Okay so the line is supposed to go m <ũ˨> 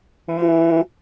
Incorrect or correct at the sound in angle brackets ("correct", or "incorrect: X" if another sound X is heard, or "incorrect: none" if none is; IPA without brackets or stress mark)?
correct